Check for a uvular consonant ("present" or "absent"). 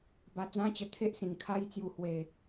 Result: absent